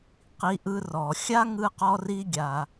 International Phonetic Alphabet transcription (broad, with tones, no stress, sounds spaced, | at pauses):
q i˧ ʔ ɯ˧ r ɔ˩ xʲ a˥ ŋ ɯ˧ q ɔ˧ r i˧ ɡʲ a˩